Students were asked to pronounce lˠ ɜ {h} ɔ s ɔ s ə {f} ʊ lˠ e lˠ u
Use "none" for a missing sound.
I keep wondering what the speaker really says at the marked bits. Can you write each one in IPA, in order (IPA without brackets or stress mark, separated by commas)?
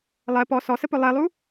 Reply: p, p